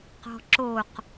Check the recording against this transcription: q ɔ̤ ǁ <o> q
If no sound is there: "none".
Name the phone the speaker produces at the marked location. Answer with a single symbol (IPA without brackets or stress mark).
o